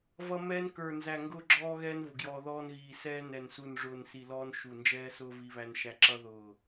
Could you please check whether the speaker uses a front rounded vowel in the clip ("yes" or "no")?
no